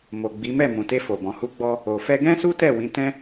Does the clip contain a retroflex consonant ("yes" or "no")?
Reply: no